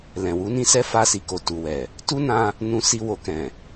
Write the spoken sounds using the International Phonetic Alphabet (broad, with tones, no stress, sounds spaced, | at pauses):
l ɛ̃˨ w u˨˦ n ĩ˦ s ɛ˦ f a˧ s i˨ k o˨ t u˨ w ɛ˨ | t u˦ n ã˧ | n ũ˧ s i˧ w o˨ k ɛ̃˨